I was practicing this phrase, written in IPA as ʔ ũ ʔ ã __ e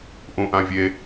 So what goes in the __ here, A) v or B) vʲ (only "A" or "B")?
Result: B